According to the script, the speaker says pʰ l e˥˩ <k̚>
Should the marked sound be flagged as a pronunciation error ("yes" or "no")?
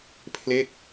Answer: no